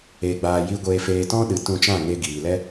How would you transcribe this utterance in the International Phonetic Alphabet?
eː˧ ɡ͡b aː˧ j i˧ ɡʷ eː˧ f eː˧ t ɔ̃˦ ɗ ɨ˨˦ t ũ˧ t͡ʃ ã˦˨ ŋ e˧ ɡ iː˨ l ɛ˦

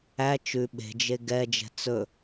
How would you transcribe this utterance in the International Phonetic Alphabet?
æ t͡ʃ ʉ ɓ e̤ d͡ʒ e ɡ ɛ d͡ʒ ɛ̤ t͡s ɵ

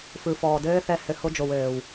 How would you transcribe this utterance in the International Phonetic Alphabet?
f ɯ˨ f ɔː˨ d ɘː˦ θ ɛ˦ h ɘ˧ h o˦ d͡ʒ o˨ w ɘː˨ w

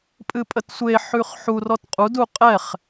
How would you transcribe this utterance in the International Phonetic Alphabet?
pʼ ɨ pʼ ə t sʷ e ħ ʉ χ ħ u r ɔ t qʼ u d u qʼ ɛ χ

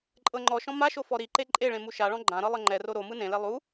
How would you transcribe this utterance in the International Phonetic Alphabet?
ǃʼ ɤ ŋ͡ǃ ɔ ʃ ɔ̃ m a ʃ o f ɔ ɾ i ǃ e ǃʼ e ɭ ẽ m u ʃ a ɭ ɔ̃ ɡ͡ǃ ã ɾ ɤ lˠ ɤ ŋ͡ǃ ɛ r o ɾ o m ɯ n ẽ l e lˠ u

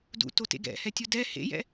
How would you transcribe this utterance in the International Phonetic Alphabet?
d ṵ t o t ḛ ɡ ɛ̰ h ɛ tʲ u d ɛ h ḛ j ɛ̰

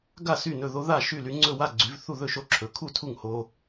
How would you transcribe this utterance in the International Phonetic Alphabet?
ɡ a˥˨ s y˥˨ n ɵ˥˨ ð o˦ ð a˥˨ ʃ y˥˨ l y˦ ŋ͡ǀ ɵ˥˨ w a˥˨ ɡ͡ǀ y˨˦ v θ u˥˨ ð ɵ˥˨ ʃ o˦ ǁʰ ɵ˨˦ kʰ u˥˨ tʰ u˥˨ ŋ h o˦

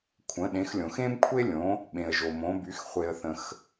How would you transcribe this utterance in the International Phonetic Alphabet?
kʷʰ ə̃˩˧ ɗ ẽ˩˧ x lʲ õ˩ x ẽ˦ m kʷʰ e˦ lʲ õ˩˧ | ɓ ẽ˩ ə̯ ʒ o˩ m õ˩˧ b y˩˧ x χʷ e˩ ə̯ θ ə̃˩ x

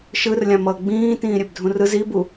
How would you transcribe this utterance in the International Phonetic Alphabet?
ʃ ɯ r lʲ ã m ʌː ɡ͡b ĩː t ĩː ɾʲ e b dʱ ũ r ɯ z i b u

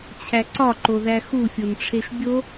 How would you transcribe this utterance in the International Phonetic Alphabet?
t͡ɕʰ æ ǀ ɒ ǃ o ð æ x u fʲ o n ʈ͡ʂʰ e ʃ bʲ o

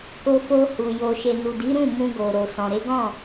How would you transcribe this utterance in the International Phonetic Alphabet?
k o˧ f o˧ h u˨ j o˨ ʃ e˨ n u˨ d i˨˦ ɾ ũ˦˨ m ũ˧ ɡ o˨ ɾ o˨ s ɔ̃˨ ɾ e˨˦ ɡ ɔ̃˦˨

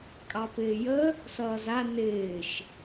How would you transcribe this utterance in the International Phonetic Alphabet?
kʼ ɑ p ɪː j ə | s ʌː z a n ɪː ʃ

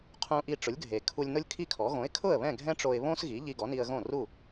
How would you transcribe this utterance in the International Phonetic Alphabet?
qʰ ũ˧ ʔ i˧ ʈ͡ʂ ʊ˩˥ lʲ ɡʱ e˩ kʰ u˧ lʲ n ʊ˥ lʲ kʰ i˥ kʰ ɔ˩˥ ɣ õ˩˥ ɪ̯ kʰ ʊ˥˩ ə̯ β ɛ̃˥˩ ɡʱ ɛ̃˥ ʈ͡ʂ o˧ ɪ̯ β õ˥ s ɣ i˩˥ ʎ i˧ ɡ ɔ˩˥ n i˧ ə̯ ɣ õ˥˩ r u˥˩

